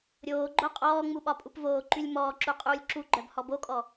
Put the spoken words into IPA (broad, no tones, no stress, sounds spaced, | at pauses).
ɾʲ oː ɡ͡ǃ o qʼ ɔː ŋ͡m u ɓ ɒ pʼ u p v oː ǃ y lʲ m ɔː ǁ u qʼ uː lʲ ǁ u ɡ͡ǃ œ b h ɔ b o kʼ ɔ